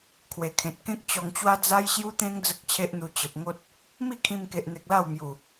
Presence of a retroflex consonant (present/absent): absent